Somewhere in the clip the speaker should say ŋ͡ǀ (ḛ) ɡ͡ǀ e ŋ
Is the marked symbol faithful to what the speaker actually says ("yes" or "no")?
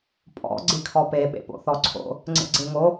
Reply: yes